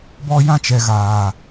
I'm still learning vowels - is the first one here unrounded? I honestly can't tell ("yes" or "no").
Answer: no